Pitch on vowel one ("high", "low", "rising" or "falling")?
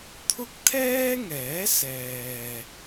high